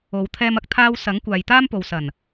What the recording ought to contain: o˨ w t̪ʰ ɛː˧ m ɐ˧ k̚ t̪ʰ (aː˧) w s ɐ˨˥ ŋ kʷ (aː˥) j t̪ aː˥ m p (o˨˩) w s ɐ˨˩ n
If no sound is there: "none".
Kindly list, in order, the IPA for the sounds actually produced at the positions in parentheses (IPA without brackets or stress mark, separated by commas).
aː˧, aː˨, o˨